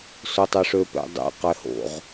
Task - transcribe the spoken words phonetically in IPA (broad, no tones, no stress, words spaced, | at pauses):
sotˤøʂøpɛ̰ dˤɛ̰qɛho̰ʁ